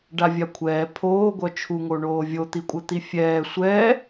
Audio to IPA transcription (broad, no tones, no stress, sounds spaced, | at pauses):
ɖ a vʲ a kʷʰ ɛː pʰ oː ɡʷ œ t͡ʃʰ u ŋ o ɳ oː vʲ o t̪ i kʷʼ ə t̪ i fʲ ɛː sʷ ɛː